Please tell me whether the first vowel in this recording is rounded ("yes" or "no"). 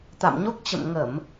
no